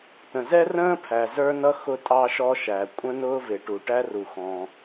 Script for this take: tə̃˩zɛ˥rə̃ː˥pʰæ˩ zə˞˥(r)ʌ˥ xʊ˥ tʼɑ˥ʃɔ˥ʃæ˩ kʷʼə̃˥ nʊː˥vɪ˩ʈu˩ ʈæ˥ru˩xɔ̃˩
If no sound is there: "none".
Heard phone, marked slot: n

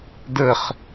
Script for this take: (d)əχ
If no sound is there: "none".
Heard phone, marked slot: d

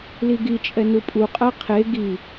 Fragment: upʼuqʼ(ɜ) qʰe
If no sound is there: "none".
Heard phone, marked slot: ɜ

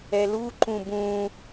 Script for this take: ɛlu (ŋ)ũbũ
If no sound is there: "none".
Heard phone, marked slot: ǃ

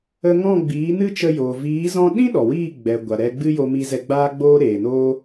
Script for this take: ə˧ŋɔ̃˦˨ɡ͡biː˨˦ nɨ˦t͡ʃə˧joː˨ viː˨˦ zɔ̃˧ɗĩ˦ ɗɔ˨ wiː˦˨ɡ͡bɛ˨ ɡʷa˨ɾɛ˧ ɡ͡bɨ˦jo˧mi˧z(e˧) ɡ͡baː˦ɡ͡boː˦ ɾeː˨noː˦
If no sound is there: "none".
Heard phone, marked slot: ɛ˧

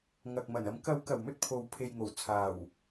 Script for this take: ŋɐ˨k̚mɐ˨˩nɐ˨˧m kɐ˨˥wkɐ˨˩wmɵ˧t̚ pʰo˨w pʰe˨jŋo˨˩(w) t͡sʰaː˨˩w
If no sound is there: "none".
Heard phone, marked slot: w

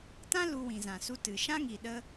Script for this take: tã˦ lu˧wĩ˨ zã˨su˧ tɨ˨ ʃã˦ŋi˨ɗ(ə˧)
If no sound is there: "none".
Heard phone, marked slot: ə˧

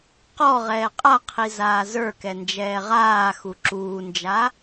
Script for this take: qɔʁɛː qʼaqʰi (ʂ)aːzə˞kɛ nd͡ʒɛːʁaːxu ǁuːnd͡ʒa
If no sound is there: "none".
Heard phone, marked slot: z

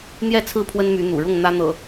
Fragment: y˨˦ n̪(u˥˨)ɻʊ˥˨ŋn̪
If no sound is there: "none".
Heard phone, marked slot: ṵ˨˩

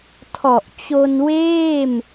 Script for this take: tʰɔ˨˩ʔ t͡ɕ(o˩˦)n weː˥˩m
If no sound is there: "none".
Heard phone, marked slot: o˧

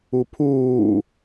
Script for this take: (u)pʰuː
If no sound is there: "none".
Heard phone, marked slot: u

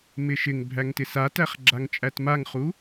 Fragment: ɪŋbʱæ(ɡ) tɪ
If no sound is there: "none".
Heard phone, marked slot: ŋ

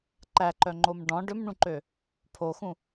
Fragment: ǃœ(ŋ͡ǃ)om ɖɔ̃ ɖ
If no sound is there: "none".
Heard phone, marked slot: ŋ͡ǃ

